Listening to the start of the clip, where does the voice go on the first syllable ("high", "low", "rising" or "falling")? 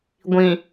low